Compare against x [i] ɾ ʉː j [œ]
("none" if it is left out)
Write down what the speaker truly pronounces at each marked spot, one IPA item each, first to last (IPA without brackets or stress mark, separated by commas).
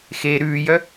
e, œ